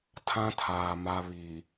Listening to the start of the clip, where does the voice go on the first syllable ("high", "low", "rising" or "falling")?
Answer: high